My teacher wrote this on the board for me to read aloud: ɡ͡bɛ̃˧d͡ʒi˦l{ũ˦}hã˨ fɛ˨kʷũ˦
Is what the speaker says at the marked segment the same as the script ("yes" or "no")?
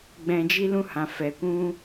yes